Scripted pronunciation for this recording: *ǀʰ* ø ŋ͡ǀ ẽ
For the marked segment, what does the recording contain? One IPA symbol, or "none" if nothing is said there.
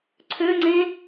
ǀʰ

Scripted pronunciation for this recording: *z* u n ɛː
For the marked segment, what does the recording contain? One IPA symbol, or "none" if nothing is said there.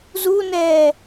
z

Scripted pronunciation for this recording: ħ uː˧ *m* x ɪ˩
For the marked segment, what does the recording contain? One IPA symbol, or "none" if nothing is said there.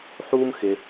m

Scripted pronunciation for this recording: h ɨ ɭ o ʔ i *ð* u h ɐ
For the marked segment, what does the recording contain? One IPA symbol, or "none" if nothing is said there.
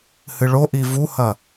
v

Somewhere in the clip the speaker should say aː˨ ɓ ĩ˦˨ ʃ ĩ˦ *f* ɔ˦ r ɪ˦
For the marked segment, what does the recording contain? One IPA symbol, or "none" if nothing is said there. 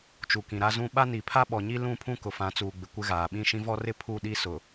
v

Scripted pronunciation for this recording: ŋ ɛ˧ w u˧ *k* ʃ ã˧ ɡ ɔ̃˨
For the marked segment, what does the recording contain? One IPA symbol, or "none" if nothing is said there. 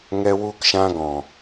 k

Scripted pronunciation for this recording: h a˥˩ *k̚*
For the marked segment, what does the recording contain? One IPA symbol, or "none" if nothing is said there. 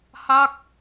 k̚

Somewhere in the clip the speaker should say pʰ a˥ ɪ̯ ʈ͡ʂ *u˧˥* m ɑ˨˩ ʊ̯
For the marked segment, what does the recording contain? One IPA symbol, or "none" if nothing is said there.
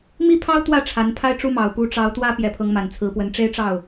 u˥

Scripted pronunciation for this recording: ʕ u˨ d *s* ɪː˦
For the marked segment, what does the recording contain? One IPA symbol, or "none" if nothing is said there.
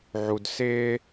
s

